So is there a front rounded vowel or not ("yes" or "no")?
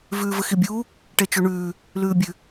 no